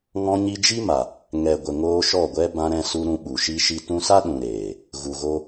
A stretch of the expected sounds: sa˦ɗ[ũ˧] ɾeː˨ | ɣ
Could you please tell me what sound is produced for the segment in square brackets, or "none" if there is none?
ũ˨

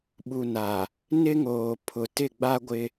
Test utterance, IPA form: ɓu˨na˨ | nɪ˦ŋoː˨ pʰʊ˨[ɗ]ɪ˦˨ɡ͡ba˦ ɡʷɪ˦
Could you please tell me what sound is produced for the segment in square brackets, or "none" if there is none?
t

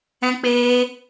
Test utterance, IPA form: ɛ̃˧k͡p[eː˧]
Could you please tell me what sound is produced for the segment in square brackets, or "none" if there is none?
eː˧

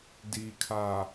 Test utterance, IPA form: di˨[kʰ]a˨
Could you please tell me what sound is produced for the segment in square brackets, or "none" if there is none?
kʰ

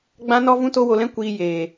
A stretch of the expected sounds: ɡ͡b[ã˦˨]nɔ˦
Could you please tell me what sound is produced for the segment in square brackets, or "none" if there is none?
ã˦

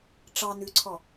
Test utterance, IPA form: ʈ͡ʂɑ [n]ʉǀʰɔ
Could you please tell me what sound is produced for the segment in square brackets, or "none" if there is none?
n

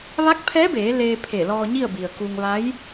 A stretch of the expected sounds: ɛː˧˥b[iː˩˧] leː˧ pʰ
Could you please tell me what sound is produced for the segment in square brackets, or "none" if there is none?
eː˩˧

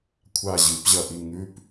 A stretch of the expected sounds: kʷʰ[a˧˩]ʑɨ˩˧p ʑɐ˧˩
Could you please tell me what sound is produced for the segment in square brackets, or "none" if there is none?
a˧˩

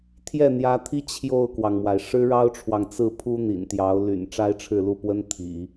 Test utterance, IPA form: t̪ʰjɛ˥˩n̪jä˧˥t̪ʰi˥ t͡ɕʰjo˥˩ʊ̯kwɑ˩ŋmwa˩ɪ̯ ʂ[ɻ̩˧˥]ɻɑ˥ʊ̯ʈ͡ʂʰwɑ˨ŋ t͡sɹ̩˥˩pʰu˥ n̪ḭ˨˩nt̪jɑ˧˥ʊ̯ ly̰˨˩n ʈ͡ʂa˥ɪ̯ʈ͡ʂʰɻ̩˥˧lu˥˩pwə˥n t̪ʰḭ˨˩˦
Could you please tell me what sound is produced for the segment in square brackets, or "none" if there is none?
ɻ̩˥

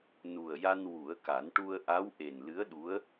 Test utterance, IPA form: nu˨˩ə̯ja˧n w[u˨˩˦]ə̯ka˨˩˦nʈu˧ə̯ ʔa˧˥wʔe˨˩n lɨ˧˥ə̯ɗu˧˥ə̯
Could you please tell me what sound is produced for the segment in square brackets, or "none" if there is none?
u˨˩˦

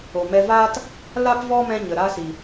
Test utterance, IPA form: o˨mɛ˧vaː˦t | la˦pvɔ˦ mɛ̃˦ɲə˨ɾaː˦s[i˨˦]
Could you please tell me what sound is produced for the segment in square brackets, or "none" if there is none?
i˨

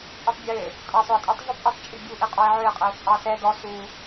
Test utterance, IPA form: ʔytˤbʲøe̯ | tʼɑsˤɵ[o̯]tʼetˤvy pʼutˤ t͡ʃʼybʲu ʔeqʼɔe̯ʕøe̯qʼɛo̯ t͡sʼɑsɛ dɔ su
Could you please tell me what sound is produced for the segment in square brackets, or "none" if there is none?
e̯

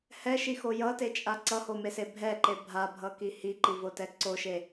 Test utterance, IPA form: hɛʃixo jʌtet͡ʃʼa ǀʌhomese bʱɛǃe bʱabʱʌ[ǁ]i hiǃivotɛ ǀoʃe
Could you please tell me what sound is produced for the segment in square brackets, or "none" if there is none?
k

